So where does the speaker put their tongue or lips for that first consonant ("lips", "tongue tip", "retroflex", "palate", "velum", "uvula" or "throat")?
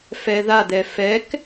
lips